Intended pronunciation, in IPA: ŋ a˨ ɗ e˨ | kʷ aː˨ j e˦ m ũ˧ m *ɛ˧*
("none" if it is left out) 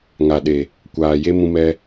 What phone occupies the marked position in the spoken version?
ɛ˧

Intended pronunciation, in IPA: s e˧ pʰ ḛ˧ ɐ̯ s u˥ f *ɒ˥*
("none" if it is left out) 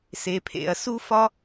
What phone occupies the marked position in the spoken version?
ɒ˥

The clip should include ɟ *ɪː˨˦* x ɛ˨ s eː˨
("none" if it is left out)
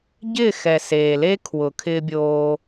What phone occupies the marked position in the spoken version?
ɪː˦˨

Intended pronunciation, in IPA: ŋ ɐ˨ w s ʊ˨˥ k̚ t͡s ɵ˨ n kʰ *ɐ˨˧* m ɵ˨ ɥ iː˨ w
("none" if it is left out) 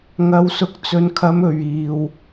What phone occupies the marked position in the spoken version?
ɐ˨˧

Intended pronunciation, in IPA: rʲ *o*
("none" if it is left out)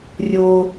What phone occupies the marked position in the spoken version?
o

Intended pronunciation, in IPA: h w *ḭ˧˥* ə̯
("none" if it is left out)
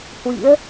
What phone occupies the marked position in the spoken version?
ḭ˧˥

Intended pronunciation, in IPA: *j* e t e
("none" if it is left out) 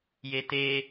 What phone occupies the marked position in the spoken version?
j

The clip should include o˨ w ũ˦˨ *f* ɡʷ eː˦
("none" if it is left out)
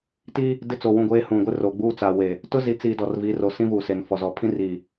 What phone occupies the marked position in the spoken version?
none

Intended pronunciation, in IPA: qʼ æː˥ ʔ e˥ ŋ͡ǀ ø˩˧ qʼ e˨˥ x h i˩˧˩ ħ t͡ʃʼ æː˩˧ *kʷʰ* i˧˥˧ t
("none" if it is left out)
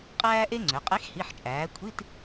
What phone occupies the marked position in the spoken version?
kʷʰ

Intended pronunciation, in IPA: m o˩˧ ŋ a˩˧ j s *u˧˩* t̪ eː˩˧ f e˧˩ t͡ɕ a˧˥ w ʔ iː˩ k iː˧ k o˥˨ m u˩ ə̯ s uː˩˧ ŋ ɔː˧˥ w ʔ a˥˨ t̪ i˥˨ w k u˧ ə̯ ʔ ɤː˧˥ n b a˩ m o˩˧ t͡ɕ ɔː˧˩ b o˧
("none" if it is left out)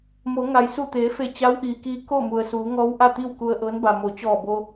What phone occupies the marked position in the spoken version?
u˧˩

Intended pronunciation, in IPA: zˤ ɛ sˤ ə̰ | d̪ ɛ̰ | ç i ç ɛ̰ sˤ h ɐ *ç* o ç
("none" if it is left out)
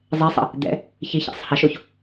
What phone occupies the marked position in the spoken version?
ʃ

